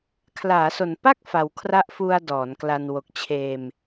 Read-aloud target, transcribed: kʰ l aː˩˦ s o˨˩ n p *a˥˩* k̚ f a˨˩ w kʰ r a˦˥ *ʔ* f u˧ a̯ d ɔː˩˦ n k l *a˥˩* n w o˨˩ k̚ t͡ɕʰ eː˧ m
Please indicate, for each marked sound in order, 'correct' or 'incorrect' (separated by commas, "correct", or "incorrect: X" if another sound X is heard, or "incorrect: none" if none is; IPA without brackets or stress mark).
correct, correct, incorrect: a˧